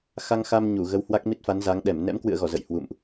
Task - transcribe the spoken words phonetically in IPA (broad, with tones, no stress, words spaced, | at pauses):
xa˧ŋxa˧m ɲu˧˩ɣə˨˦whwa˦˥k̚ mi˦˥t̚fa˨˦nza˨˦ŋ ɗɛ˧˩m nɛ̰˧˥mkwɨ̰˧˨ə̯ɣɔ˧˩ zə̰˧˨jhwṵ˧˨mʔ